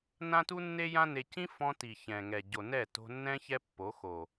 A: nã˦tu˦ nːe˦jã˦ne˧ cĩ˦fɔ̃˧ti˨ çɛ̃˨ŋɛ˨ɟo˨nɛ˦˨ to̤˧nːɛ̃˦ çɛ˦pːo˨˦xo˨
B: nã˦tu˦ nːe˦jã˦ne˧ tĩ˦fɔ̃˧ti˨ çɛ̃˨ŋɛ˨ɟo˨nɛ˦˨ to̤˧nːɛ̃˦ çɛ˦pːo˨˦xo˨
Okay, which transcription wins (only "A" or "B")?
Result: A